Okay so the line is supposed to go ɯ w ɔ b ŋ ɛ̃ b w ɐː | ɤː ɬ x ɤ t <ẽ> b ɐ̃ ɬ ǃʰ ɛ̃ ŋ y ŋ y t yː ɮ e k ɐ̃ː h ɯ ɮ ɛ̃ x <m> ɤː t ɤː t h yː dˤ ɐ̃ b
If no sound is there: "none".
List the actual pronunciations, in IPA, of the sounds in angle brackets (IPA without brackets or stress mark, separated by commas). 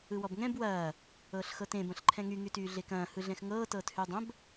ẽ, ŋ